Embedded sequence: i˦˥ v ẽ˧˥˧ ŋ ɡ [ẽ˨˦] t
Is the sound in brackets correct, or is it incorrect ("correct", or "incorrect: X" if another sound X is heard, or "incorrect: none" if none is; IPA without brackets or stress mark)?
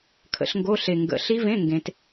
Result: correct